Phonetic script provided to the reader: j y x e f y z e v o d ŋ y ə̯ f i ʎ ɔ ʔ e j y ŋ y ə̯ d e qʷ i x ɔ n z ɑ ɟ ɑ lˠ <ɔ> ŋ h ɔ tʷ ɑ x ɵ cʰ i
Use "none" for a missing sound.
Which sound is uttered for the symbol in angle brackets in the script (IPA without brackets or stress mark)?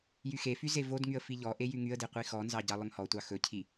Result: ɵ